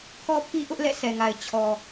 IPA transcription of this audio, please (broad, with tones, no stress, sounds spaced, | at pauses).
kʰ ɔ˦ pʰ i˦ ʔ ʊ˦ ʔ l ɛ̰˦˨ sʰ ɛ˨ ŋ a˨ ɪ̯ t͡ɕʰ ɔ˨